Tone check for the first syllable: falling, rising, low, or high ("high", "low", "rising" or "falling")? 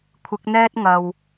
rising